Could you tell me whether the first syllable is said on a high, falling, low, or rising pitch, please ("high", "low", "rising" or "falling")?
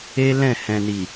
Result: high